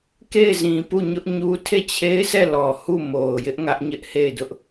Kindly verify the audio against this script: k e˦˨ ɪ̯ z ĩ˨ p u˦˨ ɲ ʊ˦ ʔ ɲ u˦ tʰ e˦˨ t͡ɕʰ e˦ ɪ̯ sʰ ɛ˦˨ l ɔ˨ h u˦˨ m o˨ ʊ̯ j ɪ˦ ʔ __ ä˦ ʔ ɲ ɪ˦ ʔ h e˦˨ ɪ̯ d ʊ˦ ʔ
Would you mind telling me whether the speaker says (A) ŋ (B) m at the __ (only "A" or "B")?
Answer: A